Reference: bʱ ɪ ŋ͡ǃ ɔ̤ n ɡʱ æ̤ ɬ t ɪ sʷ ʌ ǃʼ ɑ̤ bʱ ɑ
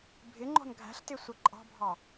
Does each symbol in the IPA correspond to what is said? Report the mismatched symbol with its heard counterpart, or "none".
none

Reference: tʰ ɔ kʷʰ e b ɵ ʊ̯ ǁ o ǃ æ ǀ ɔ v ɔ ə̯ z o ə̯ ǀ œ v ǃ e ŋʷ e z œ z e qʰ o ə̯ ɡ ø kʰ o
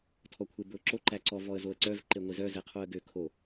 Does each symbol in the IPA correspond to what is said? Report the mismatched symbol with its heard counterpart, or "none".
none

